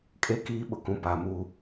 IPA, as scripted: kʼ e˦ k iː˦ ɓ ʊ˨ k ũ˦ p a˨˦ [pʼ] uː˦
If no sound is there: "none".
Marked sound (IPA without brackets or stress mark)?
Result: m